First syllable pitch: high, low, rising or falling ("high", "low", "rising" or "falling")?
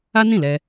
high